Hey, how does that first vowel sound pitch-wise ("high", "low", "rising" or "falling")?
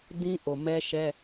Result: high